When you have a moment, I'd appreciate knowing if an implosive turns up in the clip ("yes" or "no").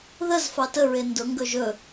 no